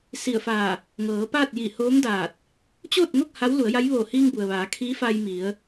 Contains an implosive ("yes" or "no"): no